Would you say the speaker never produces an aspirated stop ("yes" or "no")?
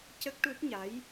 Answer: yes